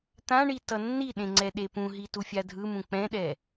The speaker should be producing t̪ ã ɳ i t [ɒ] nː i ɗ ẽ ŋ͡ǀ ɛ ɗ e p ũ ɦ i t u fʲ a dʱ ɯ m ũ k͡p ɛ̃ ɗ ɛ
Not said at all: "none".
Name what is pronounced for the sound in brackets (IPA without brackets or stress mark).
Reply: ʌ